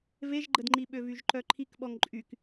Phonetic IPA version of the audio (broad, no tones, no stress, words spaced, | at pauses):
veʒɡ͡ǃədŋ͡ǃiɓø vyʒǃœǃʰikɓɔŋ ǃʼyk